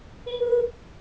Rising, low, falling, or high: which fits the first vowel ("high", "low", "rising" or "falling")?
high